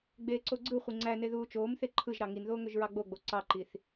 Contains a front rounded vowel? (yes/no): yes